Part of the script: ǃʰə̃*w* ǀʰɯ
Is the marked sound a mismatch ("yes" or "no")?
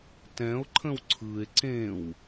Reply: no